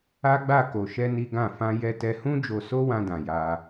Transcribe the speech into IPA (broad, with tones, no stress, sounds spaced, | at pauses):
a˦ ɡ͡b a˦˨ k o˧ ʃ ɛ˦ n i˦ ɡ ã˦˨ f ã˧ j ɛ˧ t ɛ˧ h ũ˦ d͡ʒ o˧ s o˦ w ã˧ d ã˨ j a˧